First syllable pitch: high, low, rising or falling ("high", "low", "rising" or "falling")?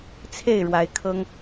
falling